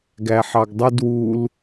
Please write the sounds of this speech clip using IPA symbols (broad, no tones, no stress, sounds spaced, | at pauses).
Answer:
ɡ æ ħ ɑ ɡ dˤ u d w u l